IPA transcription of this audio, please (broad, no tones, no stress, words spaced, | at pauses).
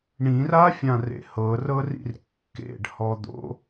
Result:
ɳĩrafʲã rḛhɤrɤrḭr kːḛɖhɔd̪o̰